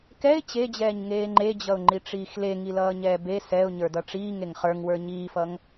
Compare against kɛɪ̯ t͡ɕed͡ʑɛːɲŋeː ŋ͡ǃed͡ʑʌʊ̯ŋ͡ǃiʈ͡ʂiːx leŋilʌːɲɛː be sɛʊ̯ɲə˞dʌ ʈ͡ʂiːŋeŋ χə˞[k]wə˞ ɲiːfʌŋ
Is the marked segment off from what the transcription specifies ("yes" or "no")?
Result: yes